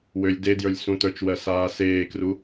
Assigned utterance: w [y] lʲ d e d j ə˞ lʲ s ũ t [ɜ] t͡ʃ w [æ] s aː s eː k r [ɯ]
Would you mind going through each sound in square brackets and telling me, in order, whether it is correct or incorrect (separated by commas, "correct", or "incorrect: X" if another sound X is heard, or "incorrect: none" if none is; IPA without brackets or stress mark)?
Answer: incorrect: ø, incorrect: ə˞, incorrect: ɜ, incorrect: u